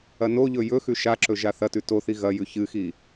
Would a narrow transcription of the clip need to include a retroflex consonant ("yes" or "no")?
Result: no